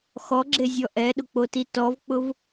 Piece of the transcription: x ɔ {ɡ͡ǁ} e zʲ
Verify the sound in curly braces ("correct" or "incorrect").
correct